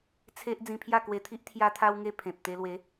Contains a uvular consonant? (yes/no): no